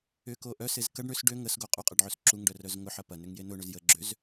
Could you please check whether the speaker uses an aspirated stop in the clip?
no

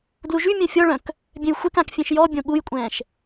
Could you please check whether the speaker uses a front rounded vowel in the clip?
yes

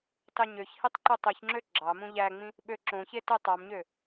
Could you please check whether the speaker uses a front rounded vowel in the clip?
yes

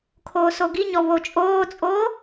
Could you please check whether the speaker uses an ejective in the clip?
yes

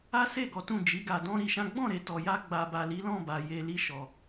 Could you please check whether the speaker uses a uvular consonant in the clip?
no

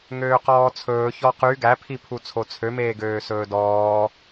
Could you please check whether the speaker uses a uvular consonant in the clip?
yes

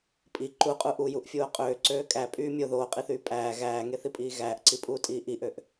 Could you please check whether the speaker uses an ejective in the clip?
yes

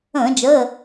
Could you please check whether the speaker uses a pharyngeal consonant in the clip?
no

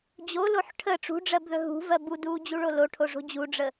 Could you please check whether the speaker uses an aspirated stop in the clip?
yes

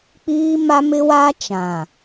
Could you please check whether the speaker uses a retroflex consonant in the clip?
no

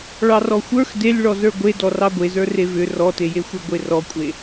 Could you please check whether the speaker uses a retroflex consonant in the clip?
yes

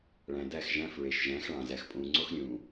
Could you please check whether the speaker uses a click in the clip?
yes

